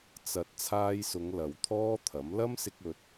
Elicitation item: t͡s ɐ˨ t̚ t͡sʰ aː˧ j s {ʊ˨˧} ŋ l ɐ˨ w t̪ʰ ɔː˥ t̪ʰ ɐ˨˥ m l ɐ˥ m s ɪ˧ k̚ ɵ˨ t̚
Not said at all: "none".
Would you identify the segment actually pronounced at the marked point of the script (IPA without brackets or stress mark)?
ʊ˨˧